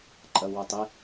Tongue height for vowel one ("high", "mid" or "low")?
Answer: low